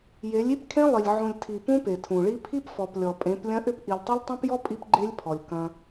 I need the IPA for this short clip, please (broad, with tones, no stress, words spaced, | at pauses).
je˨˦lʲi˦pkʰẽ˦lˠi˨lʲ ʕũ˨lʲtʰi˨ pũ˦pe˨tʰũ˨ɭi˦ pʰi˦pfɔ˨plʲɔ˨pʼẽ˨˦p lʲɐ̃˦ʔʏ˦p ʔi˨lʲtˤɵ˦lʲtˤũ˦pjɔ˦ pʼi˦pɡ͡ǃe˦lʲpʰɔ˨lʲ kɐ̃˦